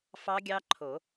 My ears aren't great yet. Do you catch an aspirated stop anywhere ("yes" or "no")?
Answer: yes